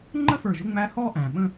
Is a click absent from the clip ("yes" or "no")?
no